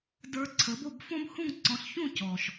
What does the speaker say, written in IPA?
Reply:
d ə˞˧ ǀʰ ə˩˥ b o˥˩ b f õ˥ b h ũ˥˩ ŋ ǀ ɔ̃˩˥ ɬ ç ũ˥˩ c ɔ˩ ʃ

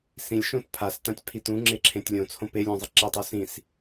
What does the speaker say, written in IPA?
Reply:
s ĩ lʲ ʃ õ t pʰ a s t ã tʲ pʰ i t ũ ŋ͡ǁ e ǁʰ ẽ tʲ lʲ õ t͡sʰ õ p e lʲ ũ zˤ e ǁ e tˤ o s ĩ s

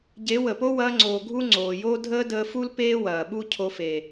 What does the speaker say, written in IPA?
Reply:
ɟ e˨˦ w ə˨ p o˦ w ɐː˧ ŋ͡ǀ oː˨ ɡʱ u˦ ŋ͡ǀ oː˨ j oː˦ dʱ əː˦ d əː˧ f u˦ l p eː˦ w ɐː˨ ɓ u˦ cʰ o˧ f e˨

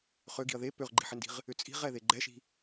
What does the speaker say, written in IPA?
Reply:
χ ø ɡ i̤ ɐ̯ ð e p ø ʁ ɡ͡ǃ i̤ ħ ɪ n d i̤ ʁ | ʏ t͡sʼ i̤ ʁ ɛ ð e ɡ͡ǃ ɛ ʃ i̤

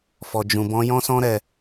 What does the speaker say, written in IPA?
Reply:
f ɔ˧ d͡ʒ ũ˧ b ɔ̃˦ j ɔ̃˦ s ɔ̃˦ ɾ ɛ˧

